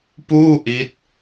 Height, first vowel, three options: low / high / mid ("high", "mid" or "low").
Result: high